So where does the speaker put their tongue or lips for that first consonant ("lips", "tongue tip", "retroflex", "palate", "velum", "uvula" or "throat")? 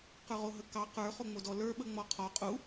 uvula